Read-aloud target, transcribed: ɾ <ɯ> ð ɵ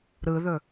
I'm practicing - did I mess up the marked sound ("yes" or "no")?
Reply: no